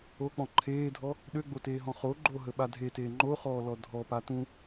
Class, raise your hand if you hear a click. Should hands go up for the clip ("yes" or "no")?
yes